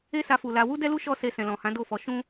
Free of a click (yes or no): yes